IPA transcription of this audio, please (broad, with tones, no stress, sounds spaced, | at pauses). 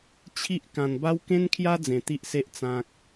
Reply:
t͡ɕʰ i˦ ʔ k ã˧ n b a˦ w k ẽ˦ n kʰ j a˦ d͡z ẽ˧ t̪ i˦ ʔ s e˦ ʔ t͡s ã˦ k̚